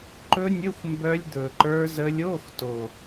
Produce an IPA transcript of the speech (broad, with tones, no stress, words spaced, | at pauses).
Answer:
ǃɵ˦˥nʲɵ˧˥˧xʷ mbœ˦˥lʲd̪ɵ˨˩ǃə˞˦˥zə˦˥lʲ o˧˥˧xto˨˩